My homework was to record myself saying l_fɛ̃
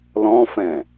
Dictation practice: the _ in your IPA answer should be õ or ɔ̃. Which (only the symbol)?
ɔ̃